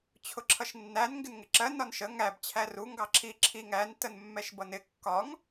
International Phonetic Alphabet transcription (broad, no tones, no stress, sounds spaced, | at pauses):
t͡ɕʰ ʊ ǁʰ ʌ ʃ nː æ n ŋ ɡ ɪ n ŋ ɪ ǁ ɜ n ɒ n ʃ ə ŋ æ b t͡ɕʰ æ r u ŋ ɡ ɑ ǁʰ i ǁʰ i ŋ æ n t ə n mː ɛ ʃ b ʌ n ɪ kː ɒ ŋ